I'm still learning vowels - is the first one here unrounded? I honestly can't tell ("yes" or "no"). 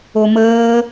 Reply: no